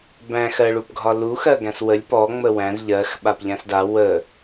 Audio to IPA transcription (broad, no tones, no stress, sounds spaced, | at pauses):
b æ̃ x ɜ ɭ u p ɡʱ ɒ l u x ɜ ɡ æ̃ s w ə lʲ p ɔ ŋ͡m ə w æ̃ z ʎ ɜ x ɓ a p ʎ æ̃ s d a w ə